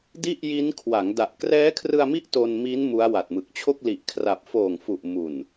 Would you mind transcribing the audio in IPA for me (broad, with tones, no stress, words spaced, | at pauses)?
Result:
di˥˩ʔji˦˥nkʰwa˩˦ŋ da˨˩ʔ krɛː˦˥kʰrɯ˧a̯mi˦˥ʔ to˧nmi˦˥n mu˦˥a̯wa˨˩t̚mɯ˨˩k̚ t͡ɕʰo˥˩k̚li˨˩ʔkʰra˨˩p̚ foː˨˩ŋfu˨˩ʔmu˨˩n